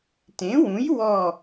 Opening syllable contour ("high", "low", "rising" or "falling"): rising